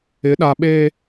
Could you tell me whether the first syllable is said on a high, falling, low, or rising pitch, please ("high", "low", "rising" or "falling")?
rising